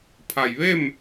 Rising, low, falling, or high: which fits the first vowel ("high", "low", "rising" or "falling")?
low